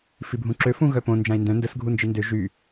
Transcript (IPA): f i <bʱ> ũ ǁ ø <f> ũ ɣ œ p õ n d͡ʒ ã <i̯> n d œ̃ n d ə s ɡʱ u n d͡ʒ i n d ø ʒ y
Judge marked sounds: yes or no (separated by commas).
yes, yes, yes